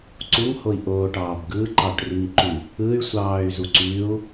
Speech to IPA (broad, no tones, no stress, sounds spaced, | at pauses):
ǀ u ŋ h o i̯ ʔ oː ʈ ɑː b ɡ ɯ ǃ ɑ ʈ r i ŋ ǃ y | ɯ y̯ sʷ ɑː y̯ z u ǀ y u̯